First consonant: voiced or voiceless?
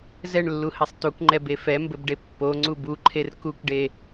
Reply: voiced